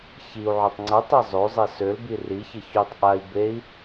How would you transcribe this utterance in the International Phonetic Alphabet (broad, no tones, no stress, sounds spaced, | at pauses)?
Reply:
ç i u̯ ʕ œ tˤ ŋ͡ǀ ə tˤ e zˤ ø zˤ e s ø l b i r i ç ə ç y tˤ ʔ a i̯ b e i̯